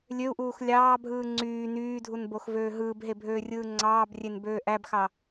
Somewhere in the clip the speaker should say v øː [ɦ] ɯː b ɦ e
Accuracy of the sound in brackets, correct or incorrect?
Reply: correct